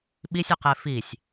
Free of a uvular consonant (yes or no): no